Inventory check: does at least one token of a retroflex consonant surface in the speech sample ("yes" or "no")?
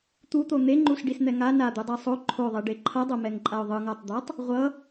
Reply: yes